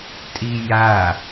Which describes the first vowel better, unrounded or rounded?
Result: unrounded